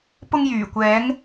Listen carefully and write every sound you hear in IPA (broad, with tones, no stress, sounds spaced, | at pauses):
p ʊ˧ ŋ j yː˨˩ kʷ ɛː˨˧ ŋ